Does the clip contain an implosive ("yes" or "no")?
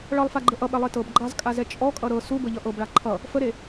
yes